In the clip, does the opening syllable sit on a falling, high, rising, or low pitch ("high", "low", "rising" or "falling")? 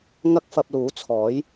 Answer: high